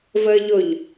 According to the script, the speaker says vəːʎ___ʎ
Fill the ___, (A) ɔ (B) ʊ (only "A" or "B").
B